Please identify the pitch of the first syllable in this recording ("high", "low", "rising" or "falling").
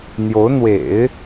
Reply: rising